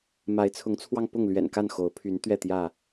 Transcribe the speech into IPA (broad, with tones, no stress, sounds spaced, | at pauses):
m a˨˦ ɪ̯ t͡sʰ ʊ˨˦ ŋ t͡sʰ w ɑ˧ ŋ p ʊ˥˨ ŋ l ɥ ɛ̰˨˩ n k a˥˨ n x o˨˦ ʊ̯ pʰ y˨˦ n t̪ ɥ ɛ˥˨ t̪ j ä˥˨